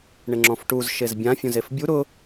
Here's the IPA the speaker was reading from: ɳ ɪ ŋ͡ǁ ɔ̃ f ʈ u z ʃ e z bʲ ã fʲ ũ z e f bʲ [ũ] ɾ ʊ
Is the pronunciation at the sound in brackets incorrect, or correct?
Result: incorrect: u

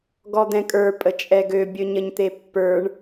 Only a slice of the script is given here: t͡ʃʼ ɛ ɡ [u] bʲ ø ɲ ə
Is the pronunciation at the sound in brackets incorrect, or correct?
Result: incorrect: ø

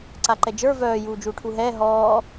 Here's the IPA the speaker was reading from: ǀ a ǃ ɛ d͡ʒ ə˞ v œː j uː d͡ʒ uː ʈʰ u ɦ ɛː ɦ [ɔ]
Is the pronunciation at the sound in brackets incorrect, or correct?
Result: incorrect: ɔː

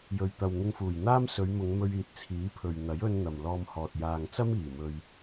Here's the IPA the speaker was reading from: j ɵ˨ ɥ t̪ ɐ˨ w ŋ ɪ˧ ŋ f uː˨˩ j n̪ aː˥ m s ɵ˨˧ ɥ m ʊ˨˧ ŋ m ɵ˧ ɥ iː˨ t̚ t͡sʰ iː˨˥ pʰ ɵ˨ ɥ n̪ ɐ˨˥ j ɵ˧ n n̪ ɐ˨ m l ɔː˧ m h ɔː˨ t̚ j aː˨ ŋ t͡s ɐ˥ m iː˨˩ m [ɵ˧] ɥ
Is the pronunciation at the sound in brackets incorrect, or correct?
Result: incorrect: ɵ˨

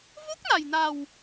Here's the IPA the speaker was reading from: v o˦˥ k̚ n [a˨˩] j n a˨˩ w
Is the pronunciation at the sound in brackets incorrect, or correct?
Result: correct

